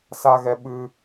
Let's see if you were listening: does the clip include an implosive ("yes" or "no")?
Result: yes